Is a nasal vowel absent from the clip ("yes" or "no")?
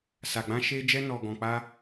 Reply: no